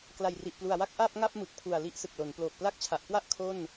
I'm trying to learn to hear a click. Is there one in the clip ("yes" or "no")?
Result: no